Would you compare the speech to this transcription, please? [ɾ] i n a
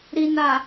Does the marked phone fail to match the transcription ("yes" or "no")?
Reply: no